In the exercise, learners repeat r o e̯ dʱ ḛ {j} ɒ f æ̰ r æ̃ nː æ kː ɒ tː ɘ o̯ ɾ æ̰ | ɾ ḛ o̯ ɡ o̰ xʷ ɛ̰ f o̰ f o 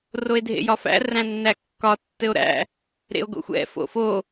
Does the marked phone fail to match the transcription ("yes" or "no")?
no